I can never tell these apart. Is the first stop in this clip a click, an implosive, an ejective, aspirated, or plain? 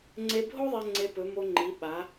click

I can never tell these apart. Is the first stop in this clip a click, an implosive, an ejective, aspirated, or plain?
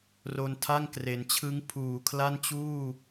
aspirated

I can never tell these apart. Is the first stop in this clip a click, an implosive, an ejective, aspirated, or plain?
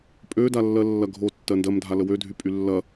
ejective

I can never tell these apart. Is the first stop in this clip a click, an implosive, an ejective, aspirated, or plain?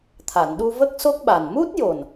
aspirated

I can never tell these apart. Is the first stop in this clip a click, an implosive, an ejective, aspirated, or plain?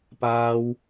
plain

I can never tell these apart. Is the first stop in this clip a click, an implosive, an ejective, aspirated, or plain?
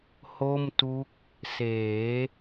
plain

